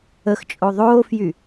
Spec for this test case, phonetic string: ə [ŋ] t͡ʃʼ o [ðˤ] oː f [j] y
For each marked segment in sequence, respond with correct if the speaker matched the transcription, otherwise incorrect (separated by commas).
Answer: incorrect, correct, correct